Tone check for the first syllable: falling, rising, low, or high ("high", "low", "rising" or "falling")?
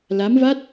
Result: rising